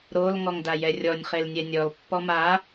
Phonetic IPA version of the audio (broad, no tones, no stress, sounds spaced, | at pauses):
ɾ o l ŋ ɔ ŋ d a j ɛ rʲ ɔ nʲ χ e l nʲ ɛ nʲ ɔ l pː ɔ m a